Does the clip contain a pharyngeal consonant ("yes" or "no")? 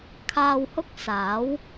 no